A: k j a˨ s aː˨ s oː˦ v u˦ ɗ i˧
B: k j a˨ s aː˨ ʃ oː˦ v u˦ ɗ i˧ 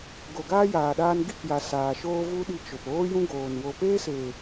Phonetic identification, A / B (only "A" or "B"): B